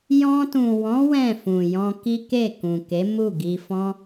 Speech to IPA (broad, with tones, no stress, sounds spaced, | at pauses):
j ɔ̃˧ t ũ˨ w ɔ̃˨˦ w ɛ̃˦˨ f ũ˨ j ɔ̃˧ k i˦ k e˦˨ k ũ˨ k e˨˦ m u˦˨ ɡ i˧ f ɔ̃˦